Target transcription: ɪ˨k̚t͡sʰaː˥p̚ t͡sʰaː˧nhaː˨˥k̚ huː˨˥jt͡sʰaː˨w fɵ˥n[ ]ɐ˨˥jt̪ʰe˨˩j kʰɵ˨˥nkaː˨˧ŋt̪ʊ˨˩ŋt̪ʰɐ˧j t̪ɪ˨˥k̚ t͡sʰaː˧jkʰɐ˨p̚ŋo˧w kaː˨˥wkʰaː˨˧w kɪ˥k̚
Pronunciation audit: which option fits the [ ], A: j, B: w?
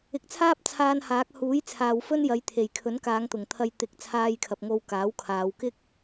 A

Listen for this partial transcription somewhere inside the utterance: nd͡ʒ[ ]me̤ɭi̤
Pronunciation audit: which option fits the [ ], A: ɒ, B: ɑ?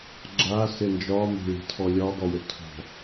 A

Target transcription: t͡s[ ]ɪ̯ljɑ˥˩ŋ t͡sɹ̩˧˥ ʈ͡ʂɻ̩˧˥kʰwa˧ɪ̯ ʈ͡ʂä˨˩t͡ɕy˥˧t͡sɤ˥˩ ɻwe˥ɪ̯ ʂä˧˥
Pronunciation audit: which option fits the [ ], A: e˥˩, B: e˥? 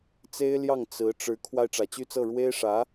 B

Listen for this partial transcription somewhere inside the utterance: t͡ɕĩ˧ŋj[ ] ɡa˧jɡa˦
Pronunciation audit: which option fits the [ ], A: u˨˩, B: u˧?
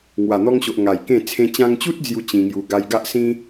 B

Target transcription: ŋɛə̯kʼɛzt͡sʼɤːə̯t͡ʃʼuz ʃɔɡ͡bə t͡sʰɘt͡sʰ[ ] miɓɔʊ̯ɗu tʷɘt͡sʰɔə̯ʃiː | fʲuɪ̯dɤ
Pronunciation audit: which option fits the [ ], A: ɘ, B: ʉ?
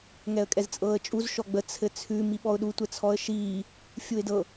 B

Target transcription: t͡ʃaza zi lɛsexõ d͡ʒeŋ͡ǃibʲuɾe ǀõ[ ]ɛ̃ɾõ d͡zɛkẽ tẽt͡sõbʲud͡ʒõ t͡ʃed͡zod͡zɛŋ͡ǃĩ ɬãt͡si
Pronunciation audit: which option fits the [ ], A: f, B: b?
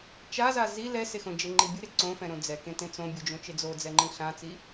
A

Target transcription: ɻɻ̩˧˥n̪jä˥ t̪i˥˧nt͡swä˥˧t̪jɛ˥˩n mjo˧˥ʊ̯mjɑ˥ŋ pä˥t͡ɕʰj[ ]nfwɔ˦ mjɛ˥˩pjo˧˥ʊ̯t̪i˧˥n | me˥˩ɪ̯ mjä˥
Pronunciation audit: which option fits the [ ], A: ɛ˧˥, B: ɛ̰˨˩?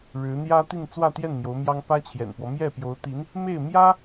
B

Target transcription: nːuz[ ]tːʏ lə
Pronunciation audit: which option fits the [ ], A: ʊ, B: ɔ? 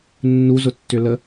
A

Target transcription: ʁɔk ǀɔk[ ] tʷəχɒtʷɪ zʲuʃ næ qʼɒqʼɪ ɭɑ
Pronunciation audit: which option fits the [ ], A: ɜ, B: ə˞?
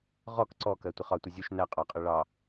A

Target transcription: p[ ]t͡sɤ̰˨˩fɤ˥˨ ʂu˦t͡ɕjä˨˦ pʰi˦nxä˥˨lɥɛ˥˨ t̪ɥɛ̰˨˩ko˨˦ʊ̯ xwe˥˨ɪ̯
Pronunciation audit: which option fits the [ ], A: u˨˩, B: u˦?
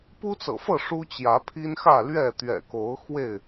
B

